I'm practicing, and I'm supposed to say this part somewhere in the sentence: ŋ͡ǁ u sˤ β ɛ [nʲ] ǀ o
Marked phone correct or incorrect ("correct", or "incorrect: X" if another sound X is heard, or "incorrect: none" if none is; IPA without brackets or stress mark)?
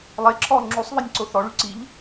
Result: correct